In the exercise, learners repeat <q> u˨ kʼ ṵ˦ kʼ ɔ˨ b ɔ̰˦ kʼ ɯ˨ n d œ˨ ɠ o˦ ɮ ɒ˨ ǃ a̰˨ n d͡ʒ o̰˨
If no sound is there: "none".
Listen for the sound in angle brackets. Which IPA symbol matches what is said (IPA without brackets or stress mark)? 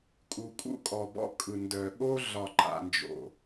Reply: kʼ